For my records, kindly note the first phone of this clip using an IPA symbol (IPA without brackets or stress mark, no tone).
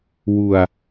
w